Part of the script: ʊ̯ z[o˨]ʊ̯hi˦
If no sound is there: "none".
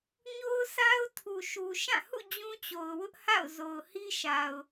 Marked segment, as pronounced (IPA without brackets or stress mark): o˨